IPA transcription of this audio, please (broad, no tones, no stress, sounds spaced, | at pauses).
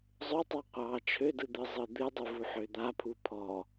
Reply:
zˤ ø tˤ ɑ qʷ ɑ t͡ʃʰ ø d ɯ d̪ ɯ zˤ ɯ d̪ ɨ dˤ ɯ v u ħ ø d̪ a pʰ u pʰ ɔ